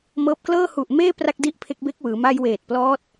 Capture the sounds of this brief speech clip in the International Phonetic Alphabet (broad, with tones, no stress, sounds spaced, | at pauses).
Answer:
m ɤː˦˥ p̚ k l ɤː˥˩ h u˨˩ ʔ m eː˥˩ p r a˥˩ k̚ d i˥˩ ʔ pʰ e˦˥ k̚ b e˦˥ k̚ w ɯː˩˦ m a˧ j w eː˨˩ t̚ p l ɔː˦˥ t̚